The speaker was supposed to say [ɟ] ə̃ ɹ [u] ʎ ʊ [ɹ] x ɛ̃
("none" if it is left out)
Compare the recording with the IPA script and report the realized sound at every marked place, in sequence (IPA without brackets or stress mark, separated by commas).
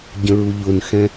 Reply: ɟ, u, n